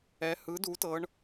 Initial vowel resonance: oral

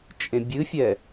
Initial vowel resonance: nasal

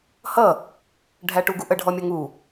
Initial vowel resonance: oral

